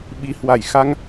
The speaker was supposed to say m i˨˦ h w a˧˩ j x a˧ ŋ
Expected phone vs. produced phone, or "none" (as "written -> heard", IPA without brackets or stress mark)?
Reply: m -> ɓ